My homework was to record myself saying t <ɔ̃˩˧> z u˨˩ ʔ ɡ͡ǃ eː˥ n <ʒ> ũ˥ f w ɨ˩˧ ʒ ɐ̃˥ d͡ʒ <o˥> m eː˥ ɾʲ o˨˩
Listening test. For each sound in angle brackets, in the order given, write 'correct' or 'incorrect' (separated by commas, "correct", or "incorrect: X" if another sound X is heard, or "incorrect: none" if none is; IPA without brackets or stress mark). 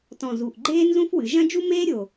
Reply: incorrect: ɔ̃˨˩, incorrect: z, incorrect: u˥